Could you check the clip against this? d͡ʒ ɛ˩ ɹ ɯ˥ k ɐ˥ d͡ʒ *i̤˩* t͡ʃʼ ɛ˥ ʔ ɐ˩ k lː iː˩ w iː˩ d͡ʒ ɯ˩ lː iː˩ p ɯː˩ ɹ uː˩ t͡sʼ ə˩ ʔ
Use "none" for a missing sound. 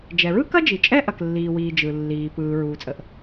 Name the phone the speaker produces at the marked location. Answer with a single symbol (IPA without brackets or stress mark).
i˩